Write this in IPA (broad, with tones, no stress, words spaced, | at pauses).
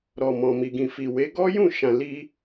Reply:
ɾɔ˨mɔ̃˨mi˨ɡĩ˨ fi˨we˨˦ ɡɔ˦jũ˦˨ʃã˨ li˧